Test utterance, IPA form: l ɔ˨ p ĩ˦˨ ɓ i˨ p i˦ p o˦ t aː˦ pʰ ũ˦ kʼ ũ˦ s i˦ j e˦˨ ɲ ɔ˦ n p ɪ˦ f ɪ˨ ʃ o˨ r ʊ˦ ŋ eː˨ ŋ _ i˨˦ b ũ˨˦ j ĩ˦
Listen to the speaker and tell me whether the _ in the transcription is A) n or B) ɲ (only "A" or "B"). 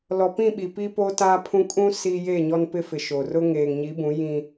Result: B